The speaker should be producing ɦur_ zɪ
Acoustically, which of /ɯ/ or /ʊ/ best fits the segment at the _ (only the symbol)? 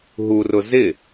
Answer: ʊ